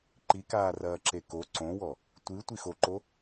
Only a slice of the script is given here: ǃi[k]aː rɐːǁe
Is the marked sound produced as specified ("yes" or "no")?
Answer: yes